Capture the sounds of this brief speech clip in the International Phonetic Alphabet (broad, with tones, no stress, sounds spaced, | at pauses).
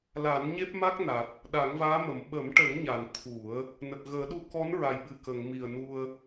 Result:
l a˨˩˦ n ɲ e˦˥ p̚ m a˦˥ k̚ n a˨˩ t̚ | ɗ a˨˩˦ ŋ v aː˧˥ m ə˨˩˨ m ɓ ə˨˩˦ m ʈ ə˨˩˦ ŋ ɲ a˨˩˨ n t̪ʰ u˨˩˦ ə̯ | n ə˨˩ k̚ ɣ əː˨˩˦ ɗ u˧ k ɔ˧˥ n ɹ a˨˩ j ɓ ɨ˨˩ k ə˨˩˨ ŋ m i˨˩ ə̯ n u˧ ə̯